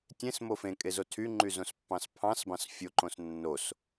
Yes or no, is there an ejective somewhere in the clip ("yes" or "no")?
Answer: yes